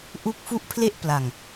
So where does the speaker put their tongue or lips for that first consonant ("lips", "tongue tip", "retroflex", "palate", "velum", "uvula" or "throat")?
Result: throat